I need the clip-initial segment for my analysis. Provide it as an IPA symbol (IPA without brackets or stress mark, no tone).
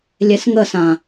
lʲ